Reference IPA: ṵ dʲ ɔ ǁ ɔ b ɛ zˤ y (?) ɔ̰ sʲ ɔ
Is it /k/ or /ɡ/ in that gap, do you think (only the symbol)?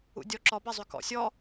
k